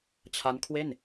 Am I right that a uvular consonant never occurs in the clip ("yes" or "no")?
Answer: yes